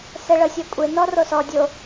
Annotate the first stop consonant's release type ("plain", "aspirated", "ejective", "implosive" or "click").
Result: ejective